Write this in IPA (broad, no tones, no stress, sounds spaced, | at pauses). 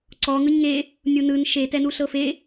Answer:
ǀ ɔ ŋ ɯ ɲ ŋ e | nʲ u n ɯ n ʃ e t ɛ n u ɬ ɤ f e